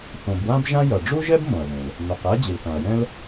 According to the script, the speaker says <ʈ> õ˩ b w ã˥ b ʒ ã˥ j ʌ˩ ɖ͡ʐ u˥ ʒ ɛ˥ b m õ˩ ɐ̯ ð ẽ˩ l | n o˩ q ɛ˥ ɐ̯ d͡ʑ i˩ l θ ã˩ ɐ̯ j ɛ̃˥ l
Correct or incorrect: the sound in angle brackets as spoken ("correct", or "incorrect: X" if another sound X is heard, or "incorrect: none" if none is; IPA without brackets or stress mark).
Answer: incorrect: θ